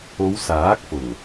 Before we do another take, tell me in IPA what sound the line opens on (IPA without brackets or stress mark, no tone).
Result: o